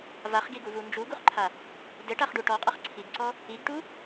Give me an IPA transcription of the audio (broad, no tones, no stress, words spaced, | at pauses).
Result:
vaχɡiɡuvu nd͡ʒuɡuχǃʰa | dɘʈaχɖu ʈɔqʼʌχ ǀʰiɡǀɔ | iɡʈu